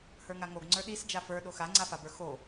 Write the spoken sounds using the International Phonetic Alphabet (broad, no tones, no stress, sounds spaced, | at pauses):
h ə˞ ŋ a ŋ o ɡ ŋ͡ǀ ə˞ ɗ i s d͡ʒ a f ə˞ ɗ o x a ŋ͡ǀ a f a b ə˞ x o